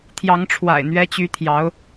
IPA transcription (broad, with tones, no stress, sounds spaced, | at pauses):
t̪ʰ j ɑ˧˥ ŋ ʈ͡ʂʰ w a̰˨˩ ɪ̯ n̪ ɥ ɛ˧˥ t͡ɕ y˧˥ t̪ʰ j ɑ˧˥ ʊ̯